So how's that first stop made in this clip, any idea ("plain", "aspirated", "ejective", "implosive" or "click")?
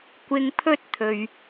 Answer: plain